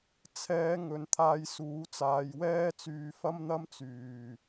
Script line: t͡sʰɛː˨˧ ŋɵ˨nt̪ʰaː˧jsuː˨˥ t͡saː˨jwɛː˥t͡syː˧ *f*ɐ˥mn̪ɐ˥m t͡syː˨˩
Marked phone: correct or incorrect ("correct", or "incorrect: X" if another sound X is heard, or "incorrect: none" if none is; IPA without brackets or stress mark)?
correct